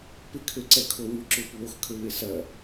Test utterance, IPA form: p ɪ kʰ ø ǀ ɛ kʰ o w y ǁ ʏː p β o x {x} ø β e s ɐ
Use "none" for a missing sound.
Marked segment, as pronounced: kʰ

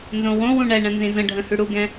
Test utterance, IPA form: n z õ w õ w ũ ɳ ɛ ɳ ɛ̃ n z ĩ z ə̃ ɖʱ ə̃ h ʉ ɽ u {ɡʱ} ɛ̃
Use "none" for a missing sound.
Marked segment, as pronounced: ɡ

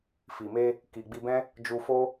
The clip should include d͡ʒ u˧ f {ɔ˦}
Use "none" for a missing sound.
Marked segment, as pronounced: o˦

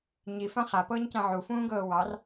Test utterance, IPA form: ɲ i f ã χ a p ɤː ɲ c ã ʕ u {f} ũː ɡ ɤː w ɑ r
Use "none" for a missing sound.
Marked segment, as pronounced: f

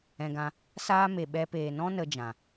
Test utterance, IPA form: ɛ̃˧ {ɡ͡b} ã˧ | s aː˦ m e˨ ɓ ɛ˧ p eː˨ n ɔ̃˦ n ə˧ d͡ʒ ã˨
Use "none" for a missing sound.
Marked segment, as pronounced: ɡ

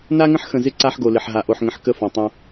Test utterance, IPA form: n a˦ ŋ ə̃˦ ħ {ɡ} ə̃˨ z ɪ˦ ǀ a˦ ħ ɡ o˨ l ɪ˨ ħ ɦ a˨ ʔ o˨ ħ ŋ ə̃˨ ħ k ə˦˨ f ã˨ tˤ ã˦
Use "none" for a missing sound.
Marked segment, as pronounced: x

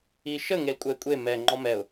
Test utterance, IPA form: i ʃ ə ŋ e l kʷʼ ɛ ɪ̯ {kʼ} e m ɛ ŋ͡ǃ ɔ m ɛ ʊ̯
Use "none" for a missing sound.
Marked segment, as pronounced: kʷʼ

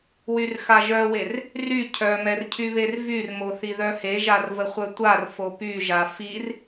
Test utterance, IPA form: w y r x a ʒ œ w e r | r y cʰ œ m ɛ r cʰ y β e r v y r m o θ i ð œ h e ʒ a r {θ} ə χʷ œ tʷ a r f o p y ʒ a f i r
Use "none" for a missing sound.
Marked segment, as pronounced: v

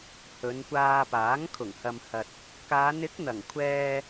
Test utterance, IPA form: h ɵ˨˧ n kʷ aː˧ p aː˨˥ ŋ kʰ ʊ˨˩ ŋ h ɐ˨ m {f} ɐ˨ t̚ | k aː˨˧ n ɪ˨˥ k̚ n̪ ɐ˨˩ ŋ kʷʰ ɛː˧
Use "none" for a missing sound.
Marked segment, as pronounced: h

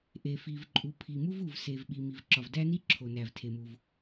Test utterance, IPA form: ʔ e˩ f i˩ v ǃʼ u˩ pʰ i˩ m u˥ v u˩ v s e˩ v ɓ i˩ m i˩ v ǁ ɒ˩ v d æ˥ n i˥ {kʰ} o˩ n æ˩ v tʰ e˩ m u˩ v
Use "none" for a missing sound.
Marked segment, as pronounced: ǁʰ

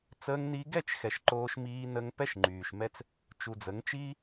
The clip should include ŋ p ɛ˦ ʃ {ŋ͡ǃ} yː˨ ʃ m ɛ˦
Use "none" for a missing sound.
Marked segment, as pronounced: ŋ͡ǃ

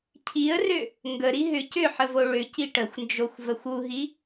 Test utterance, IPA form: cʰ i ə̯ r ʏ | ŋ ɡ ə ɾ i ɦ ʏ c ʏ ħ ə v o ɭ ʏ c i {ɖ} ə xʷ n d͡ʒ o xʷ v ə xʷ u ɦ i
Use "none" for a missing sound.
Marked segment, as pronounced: ʈ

